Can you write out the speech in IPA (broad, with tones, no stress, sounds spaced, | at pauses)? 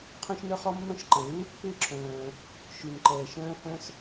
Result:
qʰ œ̃˥ ʃ n œ˥ χ ɔ˥ mː œ̃˥ ʃ ǃ ɛ̃˩ lː ʉ˥ pː ɪː˥ ǁʰ œ̃ː˩ | ʃ ʉ˩ n ǃ ɛː˩ ʃ œ̃ː˥ h œ̃˥ s